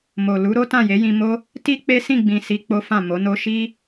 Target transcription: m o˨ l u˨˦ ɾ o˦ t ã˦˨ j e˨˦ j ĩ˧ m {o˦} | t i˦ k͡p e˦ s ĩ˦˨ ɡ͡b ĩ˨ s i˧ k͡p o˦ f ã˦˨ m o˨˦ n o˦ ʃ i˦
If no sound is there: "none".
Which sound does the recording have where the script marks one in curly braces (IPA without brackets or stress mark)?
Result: o˦